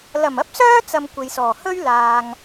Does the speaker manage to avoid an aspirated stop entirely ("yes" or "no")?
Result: yes